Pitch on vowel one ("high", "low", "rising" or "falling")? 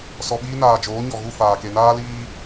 low